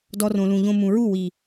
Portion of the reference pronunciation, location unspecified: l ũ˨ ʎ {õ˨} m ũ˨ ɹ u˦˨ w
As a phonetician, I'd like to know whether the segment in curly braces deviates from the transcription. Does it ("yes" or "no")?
yes